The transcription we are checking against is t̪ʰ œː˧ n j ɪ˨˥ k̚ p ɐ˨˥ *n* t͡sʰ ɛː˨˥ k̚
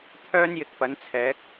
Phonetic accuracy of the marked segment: correct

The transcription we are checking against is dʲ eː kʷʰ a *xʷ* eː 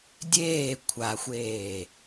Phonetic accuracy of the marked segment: correct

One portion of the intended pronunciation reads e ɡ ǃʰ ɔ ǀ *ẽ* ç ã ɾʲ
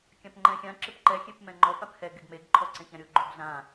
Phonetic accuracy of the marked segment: correct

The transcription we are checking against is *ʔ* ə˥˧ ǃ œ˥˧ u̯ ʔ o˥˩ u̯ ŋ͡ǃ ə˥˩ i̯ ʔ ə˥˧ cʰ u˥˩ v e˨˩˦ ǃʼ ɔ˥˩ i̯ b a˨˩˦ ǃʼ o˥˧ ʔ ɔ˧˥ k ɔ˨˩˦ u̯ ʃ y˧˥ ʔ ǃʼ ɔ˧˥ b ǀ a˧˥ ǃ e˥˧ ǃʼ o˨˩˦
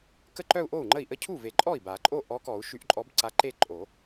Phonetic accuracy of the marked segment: incorrect: k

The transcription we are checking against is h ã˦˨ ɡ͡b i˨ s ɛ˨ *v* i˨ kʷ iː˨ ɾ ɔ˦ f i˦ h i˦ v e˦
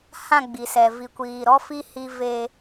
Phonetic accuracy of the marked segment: correct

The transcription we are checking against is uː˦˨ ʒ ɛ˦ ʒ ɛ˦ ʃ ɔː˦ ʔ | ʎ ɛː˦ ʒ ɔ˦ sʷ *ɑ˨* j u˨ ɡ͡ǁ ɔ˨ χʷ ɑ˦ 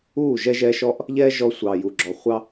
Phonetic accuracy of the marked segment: correct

